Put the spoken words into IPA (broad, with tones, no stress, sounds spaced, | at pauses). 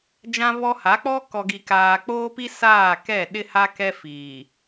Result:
d͡ʒ ã˦ β ɔ˦ h a˨˦ k͡p ɔ˦ k ɔ˨ ɡ i˨ k aː˨ k͡p oː˦ p i˦ s aː˦˨ k ɛ˦˨ ɗ ɪ˦ h a˦ k ɛ˦ f iː˨